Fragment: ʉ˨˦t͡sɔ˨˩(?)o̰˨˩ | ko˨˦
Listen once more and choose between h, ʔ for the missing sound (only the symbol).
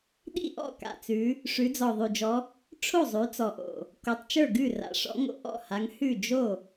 ʔ